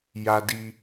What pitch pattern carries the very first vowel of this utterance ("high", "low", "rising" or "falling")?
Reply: high